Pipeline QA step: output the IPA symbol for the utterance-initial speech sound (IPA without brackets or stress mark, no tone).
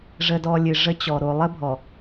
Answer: ʐ